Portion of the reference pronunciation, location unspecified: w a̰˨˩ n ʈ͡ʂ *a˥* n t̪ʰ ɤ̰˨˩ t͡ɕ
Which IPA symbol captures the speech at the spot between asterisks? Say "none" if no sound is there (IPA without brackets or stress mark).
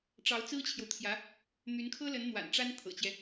a˥